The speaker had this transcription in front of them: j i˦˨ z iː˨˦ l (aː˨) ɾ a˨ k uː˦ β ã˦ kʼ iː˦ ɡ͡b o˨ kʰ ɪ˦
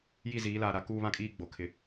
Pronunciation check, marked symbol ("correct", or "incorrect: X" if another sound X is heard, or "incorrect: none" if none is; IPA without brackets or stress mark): correct